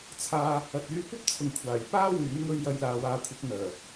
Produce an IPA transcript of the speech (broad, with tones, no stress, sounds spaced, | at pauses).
t͡sʰ aː˨ | ɐ˨ t̚ yː˧ kʷ ɐ˥ p̚ t͡sʰ ʊ˨ ŋ kʷʰ aː˨˩ j p aː˥ w yː˨˥ m ŋ ɵ˧ ɥ j ɐ˨˧ j l aː˨ w aː˨˧ kʷʰ ɐ˨˥ p̚ n̪ œː˨˩